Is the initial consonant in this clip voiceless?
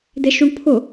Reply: no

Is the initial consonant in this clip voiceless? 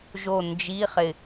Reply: no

